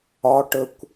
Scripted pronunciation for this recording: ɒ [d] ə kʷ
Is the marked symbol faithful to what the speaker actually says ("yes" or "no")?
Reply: no